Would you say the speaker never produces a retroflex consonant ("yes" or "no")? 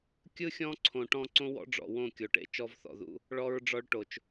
no